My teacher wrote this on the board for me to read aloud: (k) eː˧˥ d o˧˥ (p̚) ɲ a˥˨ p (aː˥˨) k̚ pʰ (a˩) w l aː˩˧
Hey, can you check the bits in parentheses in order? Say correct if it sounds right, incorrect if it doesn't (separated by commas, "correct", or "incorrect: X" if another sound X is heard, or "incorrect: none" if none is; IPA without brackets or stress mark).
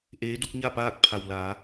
incorrect: ʔ, incorrect: k̚, correct, correct